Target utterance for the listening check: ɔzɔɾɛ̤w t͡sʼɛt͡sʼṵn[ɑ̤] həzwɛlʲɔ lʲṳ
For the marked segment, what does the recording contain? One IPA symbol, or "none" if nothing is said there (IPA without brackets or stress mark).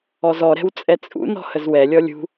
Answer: ɔ̤